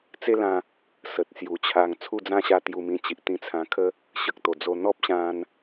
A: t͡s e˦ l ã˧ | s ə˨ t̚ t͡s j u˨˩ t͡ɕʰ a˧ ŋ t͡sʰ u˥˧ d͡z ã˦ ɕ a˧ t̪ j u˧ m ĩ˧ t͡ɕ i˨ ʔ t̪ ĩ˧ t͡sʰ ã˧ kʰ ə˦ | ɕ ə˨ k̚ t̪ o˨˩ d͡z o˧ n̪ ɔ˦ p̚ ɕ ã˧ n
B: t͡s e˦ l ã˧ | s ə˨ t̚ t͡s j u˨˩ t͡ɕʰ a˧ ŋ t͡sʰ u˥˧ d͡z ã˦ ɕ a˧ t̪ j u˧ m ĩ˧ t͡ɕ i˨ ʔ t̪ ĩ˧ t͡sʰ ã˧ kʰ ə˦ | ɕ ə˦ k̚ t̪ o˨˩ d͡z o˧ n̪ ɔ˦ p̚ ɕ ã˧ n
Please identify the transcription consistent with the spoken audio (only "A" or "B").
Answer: A